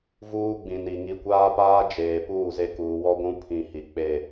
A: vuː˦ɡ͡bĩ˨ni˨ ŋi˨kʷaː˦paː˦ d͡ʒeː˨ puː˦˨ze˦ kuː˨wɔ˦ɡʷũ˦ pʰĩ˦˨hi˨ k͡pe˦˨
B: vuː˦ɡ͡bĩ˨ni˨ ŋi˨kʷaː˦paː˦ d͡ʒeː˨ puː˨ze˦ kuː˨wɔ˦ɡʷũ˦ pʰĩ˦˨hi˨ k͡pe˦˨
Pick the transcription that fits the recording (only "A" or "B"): A